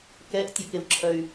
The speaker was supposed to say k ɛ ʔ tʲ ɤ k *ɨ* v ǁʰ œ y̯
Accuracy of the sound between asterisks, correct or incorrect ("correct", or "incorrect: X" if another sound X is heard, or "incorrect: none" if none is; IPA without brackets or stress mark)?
incorrect: e